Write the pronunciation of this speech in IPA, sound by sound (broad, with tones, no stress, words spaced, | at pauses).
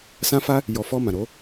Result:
sã˦ fa˦ | jɔ˨fɔ˧ mã˨ɾo˨˦